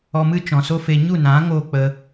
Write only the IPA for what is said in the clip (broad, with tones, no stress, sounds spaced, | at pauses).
ɔ˧ m ɨ˦ t͡ʃ ɔ̃˨ s o˦ f e˧ ɲ u˦˨ n ã˨˦ ŋ o˦˨ k͡p ə˧